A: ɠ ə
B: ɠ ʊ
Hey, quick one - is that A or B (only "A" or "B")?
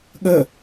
A